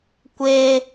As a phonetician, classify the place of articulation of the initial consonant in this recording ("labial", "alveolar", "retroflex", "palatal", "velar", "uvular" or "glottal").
velar